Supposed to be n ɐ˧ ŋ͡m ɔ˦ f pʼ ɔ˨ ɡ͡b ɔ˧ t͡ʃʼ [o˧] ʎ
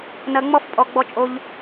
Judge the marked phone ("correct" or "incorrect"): correct